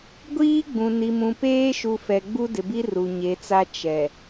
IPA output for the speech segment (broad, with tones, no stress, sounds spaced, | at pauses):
ɡʷ iː˦ ɡ͡b ũ˨ n i˨ m ũ˨ p eː˦ ʃ u˨ f ɛ˨ ɡ͡b u˦ d ɪ˨ b i˦ r u˨ ɲ e˨˦ t͡s a˦ t͡ʃ ɛ˨